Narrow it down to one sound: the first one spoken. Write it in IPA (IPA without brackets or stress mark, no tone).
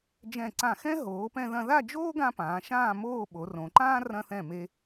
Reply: d͡ʒ